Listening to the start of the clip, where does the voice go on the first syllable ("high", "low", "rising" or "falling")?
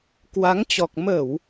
rising